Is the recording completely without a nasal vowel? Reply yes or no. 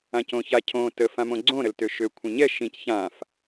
no